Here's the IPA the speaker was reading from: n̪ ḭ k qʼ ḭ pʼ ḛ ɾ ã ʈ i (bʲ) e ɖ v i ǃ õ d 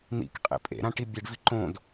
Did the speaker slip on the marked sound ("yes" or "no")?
no